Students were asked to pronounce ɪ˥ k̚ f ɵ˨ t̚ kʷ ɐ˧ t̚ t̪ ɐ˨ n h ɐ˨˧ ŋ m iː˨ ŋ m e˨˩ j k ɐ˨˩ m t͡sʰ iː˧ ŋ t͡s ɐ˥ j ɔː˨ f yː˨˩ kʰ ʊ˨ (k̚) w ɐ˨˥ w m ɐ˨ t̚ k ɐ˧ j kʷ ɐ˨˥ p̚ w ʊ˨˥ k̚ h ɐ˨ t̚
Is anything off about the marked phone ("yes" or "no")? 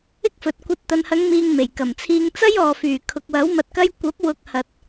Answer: no